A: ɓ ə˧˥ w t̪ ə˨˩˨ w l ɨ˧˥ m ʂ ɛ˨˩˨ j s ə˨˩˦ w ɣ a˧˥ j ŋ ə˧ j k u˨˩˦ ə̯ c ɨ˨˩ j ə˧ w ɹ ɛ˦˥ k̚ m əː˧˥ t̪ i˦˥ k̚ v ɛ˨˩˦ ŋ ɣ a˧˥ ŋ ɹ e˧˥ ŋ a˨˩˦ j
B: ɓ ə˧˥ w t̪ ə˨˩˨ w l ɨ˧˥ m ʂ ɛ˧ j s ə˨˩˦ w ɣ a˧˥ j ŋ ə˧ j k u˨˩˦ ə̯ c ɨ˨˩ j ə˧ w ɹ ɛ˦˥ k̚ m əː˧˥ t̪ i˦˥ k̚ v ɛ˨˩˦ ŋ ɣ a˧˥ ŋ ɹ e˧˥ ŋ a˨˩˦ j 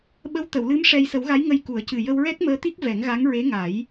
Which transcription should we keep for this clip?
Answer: B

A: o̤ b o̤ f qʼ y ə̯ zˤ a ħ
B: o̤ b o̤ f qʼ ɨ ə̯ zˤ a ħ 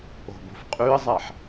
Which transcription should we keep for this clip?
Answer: A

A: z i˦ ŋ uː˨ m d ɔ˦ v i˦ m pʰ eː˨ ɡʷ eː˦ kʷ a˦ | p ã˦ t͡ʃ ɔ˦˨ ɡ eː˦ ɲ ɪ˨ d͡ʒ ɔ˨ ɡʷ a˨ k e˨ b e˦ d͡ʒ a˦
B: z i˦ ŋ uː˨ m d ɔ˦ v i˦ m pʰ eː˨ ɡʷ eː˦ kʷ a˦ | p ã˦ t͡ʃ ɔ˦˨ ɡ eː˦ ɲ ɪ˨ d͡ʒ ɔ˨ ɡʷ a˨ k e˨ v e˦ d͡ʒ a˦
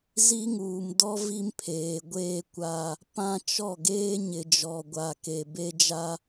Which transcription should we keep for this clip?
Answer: A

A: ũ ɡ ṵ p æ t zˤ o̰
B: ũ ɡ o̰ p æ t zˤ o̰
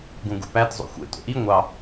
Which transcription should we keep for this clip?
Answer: A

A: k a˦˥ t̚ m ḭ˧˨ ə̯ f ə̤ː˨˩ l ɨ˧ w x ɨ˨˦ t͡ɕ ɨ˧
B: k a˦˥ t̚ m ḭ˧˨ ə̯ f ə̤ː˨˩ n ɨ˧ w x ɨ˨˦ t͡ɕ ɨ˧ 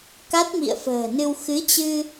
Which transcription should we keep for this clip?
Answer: B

